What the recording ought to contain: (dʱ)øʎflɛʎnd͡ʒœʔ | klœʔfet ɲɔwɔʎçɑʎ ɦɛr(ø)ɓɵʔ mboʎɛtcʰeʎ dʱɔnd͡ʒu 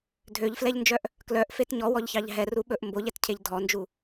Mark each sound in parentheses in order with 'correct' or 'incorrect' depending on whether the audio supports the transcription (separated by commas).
correct, incorrect